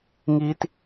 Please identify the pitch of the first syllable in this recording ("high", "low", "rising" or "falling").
high